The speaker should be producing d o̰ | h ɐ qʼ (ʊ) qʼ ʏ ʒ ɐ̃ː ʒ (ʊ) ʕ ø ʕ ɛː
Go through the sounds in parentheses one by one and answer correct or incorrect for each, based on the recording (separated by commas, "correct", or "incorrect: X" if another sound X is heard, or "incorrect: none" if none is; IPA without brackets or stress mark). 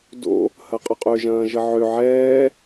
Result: correct, incorrect: ə